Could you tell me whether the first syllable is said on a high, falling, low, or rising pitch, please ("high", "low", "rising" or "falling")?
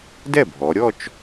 falling